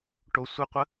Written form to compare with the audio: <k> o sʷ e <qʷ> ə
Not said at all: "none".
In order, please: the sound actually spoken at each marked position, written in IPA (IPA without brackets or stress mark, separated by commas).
ʈ, qʷ